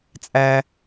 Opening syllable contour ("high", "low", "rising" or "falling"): high